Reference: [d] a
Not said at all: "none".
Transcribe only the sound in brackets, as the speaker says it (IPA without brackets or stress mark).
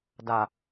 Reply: d